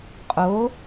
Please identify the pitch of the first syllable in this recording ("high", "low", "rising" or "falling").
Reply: rising